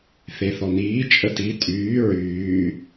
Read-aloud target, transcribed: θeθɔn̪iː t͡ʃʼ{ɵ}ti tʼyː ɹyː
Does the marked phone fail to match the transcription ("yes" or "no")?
yes